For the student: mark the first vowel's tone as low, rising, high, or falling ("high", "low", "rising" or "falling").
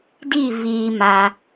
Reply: falling